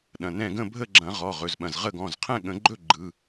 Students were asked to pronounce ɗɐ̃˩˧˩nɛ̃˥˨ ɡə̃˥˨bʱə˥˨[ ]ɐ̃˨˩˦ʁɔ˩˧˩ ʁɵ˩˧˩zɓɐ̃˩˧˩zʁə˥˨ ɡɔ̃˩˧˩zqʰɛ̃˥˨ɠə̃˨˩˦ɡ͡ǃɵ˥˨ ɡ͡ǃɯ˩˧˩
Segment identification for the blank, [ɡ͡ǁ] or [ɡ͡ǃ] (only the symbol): ɡ͡ǁ